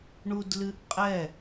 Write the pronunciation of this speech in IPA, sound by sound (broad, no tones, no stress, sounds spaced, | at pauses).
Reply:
ɳ u d l ɨ ʔ qʼ ɛ